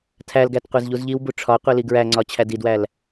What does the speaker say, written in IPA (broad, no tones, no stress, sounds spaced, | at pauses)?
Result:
tʰ æ l ɡ æ t qʷ e z ʎ u z ʎ i w b u ʈ͡ʂʰ ɒ qʷ i l i ɡ ɹ æ ŋ͡ǀ ɒ t͡ɕʰ æ d i d w æ l